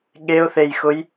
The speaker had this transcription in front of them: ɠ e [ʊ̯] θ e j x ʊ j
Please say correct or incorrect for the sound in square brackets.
correct